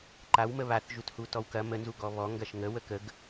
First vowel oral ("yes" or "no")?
yes